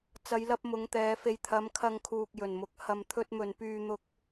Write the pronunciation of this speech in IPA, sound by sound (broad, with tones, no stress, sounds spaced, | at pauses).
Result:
t͡s ɐ˨˧ j l ɐ˧ p̚ m ʊ˨˧ ŋ t̪ ɛː˨˧ f e˨ j t̪ʰ ɐ˨˧ m kʰ ɐ˧ ŋ kʰ uː˨ k̚ j ɵ˨˩ n m ʊ˨˥ k̚ h ɐ˧ m t̪ʰ ɵ˥ t̚ m ɵ˧ n p yː˧ n̪ ʊ˧ k̚